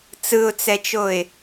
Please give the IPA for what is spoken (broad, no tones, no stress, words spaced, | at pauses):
t͡sɯʊ̯t͡sɛt͡ʃoɪ̯